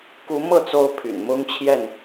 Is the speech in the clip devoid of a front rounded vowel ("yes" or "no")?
no